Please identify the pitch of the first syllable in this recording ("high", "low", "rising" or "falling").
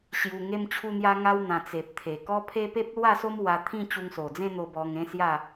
low